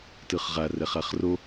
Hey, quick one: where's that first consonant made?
tongue tip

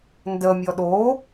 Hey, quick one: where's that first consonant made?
tongue tip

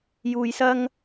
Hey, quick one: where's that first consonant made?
palate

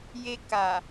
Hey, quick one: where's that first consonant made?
palate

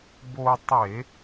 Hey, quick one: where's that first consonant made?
lips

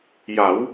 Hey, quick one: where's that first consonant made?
palate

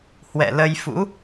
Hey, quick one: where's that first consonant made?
throat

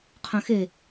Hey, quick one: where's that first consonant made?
uvula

